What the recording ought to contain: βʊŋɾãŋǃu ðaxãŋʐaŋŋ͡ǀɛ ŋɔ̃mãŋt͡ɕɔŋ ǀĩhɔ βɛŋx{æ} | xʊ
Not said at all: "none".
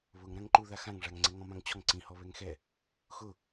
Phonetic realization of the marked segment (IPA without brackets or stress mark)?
ɛ